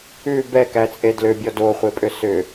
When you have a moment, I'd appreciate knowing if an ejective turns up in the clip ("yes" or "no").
yes